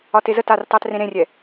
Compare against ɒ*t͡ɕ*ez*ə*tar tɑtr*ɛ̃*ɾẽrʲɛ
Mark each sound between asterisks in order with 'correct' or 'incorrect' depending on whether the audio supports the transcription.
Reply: incorrect, correct, incorrect

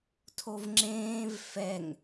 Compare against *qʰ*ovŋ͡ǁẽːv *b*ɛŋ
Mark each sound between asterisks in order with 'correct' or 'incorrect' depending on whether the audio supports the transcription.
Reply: incorrect, incorrect

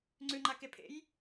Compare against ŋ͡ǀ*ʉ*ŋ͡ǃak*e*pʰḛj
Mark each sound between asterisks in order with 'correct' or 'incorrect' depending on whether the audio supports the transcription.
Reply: correct, correct

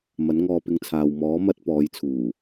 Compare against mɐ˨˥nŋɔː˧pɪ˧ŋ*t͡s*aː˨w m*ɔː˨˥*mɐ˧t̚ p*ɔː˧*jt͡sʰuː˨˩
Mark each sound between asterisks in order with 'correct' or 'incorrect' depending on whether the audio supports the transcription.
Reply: incorrect, correct, incorrect

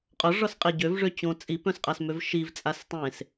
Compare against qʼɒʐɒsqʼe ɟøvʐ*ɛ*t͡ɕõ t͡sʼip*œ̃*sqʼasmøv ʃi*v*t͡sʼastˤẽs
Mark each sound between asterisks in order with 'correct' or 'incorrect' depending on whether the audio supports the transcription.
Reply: incorrect, correct, correct

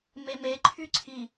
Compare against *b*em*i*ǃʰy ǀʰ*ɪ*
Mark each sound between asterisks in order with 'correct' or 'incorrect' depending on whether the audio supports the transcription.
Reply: incorrect, incorrect, incorrect

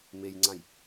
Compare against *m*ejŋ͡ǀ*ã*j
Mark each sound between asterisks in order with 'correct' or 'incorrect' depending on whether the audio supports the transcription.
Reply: correct, correct

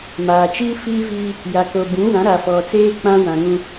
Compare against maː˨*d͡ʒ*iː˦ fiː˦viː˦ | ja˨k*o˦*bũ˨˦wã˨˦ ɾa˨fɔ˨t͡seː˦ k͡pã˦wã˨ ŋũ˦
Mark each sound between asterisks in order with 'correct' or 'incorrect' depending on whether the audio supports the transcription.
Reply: incorrect, incorrect

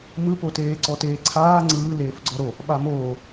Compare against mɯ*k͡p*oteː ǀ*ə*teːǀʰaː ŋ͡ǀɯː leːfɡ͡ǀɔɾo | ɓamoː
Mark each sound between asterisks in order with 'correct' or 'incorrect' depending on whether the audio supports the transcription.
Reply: incorrect, incorrect

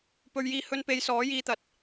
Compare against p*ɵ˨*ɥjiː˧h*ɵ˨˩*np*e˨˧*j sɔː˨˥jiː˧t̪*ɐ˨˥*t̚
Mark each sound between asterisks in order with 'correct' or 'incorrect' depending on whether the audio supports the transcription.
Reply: correct, incorrect, correct, correct

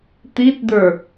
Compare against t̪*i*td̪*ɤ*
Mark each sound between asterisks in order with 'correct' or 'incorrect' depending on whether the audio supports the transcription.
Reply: correct, incorrect

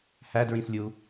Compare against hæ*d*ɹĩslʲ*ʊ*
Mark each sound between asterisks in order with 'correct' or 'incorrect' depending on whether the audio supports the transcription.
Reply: correct, incorrect

